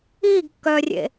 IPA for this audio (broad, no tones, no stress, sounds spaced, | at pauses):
iː ɡ kː œː rʲ ḛ